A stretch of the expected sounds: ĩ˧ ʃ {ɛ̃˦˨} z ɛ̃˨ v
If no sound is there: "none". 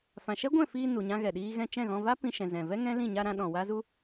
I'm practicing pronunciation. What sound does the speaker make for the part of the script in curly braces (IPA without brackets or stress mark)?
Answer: ɛ̃˨